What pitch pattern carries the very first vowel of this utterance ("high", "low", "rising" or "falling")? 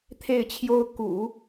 falling